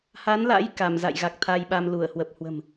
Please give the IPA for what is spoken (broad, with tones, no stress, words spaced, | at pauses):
ha˨˦nla̰˧˥j ka˧˩mza̰˧˨j ɣa˨˩k̚t̪ʰa˧jɓa˧m lu˧˩ə̯ hwə˨˩p̚hwə̤˨˩m